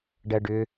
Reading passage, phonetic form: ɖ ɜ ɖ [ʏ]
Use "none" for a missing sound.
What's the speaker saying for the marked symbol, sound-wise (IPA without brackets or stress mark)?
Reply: ʏ